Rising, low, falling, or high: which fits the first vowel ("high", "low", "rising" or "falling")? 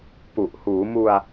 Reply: low